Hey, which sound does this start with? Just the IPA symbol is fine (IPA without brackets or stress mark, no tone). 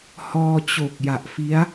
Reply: h